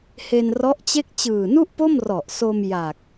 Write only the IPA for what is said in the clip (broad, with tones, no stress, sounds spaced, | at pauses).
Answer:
h e˧ n r ɔ˦˥ ʔ t͡ɕ e˥˩ k̚ t͡ɕ ɯː˨˩ n u˥˩ ʔ p o˥˩ m r ɔ˨˩ ʔ s o˧ m j a˨˩ k̚